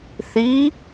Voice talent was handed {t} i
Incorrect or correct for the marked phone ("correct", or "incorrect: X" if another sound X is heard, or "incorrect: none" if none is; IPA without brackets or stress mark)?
incorrect: θ